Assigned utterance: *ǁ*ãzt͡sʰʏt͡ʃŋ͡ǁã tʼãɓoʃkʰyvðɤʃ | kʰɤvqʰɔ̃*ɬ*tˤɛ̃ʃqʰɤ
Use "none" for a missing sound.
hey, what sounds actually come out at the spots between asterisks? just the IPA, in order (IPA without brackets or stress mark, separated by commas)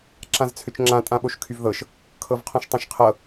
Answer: ǁ, ʃ